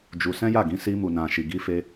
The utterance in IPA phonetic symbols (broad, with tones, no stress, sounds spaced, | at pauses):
d͡ʒ u˧ s ɛ̃˦ j a˦˨ ɡ ĩ˨˦ s i˧ m u˨ n ã˨ ʃ i˨ ɡ i˧ f e˧